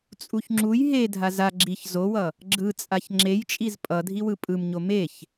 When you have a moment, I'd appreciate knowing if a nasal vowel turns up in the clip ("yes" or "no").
no